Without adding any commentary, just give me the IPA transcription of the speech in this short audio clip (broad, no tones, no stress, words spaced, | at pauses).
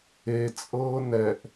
e t͡sʼɤːnɛʔ